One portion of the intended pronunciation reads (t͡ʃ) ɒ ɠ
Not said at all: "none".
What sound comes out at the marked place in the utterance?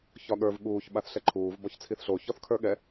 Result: ç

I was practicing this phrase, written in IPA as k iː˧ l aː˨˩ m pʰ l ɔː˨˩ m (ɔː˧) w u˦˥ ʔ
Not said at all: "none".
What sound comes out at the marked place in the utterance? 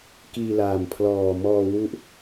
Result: ɔː˧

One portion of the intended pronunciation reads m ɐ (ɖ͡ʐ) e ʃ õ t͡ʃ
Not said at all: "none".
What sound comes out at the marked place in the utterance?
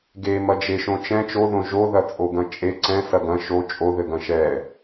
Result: d͡ʒ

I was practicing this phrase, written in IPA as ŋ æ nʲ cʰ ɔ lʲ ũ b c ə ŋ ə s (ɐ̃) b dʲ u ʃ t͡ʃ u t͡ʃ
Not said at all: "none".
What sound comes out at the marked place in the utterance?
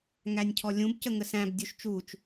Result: æ̃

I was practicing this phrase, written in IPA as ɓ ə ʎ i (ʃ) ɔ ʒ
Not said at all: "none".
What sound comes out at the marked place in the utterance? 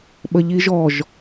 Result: ʒ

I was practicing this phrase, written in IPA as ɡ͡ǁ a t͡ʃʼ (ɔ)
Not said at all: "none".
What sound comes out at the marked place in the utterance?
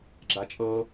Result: ɤ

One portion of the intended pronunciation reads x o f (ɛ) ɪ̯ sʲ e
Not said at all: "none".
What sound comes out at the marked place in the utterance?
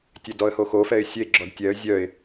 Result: ɛ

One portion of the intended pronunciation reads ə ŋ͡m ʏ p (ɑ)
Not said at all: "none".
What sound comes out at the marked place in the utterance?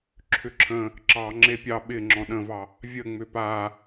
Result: a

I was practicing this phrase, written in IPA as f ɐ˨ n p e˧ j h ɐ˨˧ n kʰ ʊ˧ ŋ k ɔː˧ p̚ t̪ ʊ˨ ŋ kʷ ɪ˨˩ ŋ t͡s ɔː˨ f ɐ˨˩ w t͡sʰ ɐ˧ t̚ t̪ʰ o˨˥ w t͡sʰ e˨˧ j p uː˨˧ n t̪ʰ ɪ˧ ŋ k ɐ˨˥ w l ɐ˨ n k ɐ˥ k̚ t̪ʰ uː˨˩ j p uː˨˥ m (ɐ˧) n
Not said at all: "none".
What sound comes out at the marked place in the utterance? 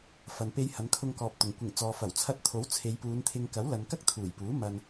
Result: ɐ˧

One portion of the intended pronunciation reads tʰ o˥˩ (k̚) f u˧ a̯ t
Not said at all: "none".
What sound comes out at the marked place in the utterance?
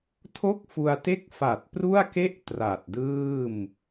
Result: k̚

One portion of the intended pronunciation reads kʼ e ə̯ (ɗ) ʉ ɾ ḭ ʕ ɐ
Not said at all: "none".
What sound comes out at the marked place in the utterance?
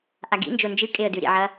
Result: d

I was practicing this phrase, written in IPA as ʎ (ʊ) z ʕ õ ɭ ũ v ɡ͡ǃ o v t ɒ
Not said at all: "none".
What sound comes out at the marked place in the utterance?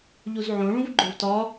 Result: u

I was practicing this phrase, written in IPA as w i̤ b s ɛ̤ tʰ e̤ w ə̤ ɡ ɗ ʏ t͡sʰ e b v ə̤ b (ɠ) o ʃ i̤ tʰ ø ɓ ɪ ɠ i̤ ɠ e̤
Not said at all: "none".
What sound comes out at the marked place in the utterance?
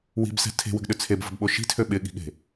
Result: ɓ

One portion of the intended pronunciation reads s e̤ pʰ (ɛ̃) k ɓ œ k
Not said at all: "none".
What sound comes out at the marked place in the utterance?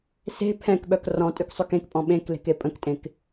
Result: ɛ̃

